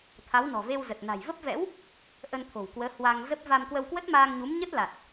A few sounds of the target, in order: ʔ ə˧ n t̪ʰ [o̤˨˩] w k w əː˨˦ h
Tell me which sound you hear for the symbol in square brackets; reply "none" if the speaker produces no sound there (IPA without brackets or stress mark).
o̤˨˩